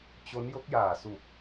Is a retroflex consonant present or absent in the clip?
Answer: absent